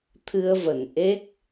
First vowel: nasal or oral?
oral